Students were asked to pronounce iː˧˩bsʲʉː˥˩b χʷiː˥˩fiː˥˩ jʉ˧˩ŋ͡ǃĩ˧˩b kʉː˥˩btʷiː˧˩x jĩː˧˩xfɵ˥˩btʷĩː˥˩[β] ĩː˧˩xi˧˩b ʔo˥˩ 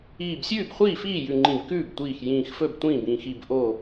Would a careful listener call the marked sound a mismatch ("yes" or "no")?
yes